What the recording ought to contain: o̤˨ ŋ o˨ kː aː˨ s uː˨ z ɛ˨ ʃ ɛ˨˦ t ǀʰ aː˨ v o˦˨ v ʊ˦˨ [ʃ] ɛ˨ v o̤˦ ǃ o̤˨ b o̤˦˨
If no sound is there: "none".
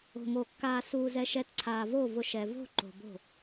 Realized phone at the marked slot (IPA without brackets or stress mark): ʃ